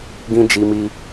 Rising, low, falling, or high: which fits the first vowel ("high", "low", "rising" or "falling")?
high